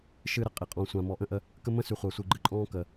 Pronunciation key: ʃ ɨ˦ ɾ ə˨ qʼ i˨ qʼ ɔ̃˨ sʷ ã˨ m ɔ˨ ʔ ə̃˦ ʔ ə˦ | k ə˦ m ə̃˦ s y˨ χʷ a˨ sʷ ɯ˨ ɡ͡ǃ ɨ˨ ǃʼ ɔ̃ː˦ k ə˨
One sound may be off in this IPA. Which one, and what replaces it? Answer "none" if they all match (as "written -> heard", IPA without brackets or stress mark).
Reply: none